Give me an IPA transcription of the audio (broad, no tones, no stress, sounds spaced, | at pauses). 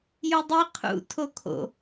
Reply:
j u dˤ i qʰ ṵ tʰ o kʰ o̰